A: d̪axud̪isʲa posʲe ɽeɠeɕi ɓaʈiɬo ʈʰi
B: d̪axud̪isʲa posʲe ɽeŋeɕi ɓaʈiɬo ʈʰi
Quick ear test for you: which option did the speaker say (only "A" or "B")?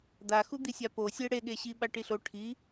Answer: A